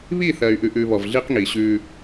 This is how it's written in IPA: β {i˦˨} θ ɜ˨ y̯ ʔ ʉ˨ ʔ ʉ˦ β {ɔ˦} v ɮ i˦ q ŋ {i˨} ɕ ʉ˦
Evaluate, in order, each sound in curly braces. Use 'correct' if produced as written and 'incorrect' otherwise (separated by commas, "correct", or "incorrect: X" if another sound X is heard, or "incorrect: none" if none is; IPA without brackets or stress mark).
correct, incorrect: ɔ˨, correct